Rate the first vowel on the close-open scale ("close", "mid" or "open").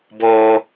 mid